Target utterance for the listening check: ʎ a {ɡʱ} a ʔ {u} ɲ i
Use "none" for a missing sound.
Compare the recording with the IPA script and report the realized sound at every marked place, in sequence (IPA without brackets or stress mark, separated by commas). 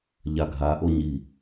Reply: ɡʱ, o